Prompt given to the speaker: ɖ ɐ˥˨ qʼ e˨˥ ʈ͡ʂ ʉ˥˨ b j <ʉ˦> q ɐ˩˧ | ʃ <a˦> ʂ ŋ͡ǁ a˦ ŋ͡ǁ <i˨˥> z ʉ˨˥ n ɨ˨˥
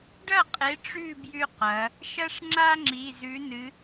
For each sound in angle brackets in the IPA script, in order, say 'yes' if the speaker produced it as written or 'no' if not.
yes, no, no

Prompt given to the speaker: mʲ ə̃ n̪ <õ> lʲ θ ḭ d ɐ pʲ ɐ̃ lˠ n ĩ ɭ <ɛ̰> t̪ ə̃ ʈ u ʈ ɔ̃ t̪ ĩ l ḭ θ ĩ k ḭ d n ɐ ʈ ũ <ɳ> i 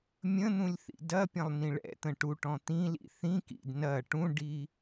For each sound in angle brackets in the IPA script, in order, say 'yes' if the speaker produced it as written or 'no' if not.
no, yes, no

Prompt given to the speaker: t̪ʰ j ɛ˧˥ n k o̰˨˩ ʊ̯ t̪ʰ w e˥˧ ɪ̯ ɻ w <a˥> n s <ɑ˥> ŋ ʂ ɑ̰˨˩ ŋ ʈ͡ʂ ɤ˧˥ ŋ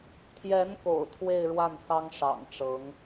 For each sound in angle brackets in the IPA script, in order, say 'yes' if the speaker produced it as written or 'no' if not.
no, yes

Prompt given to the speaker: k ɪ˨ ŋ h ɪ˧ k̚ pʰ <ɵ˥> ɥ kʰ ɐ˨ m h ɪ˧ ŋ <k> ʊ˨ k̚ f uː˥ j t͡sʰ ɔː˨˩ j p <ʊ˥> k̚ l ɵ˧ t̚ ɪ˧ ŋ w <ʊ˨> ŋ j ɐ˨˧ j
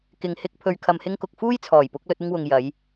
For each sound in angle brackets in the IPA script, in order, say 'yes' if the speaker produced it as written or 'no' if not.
no, yes, no, yes

